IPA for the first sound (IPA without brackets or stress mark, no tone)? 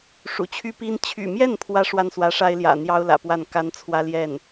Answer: ʂ